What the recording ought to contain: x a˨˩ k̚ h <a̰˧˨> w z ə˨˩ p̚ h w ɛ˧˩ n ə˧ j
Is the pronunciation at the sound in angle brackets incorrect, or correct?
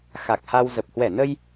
incorrect